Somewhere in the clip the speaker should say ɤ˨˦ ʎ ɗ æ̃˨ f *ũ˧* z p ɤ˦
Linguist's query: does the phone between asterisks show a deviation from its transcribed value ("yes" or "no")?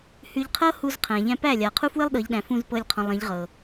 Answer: yes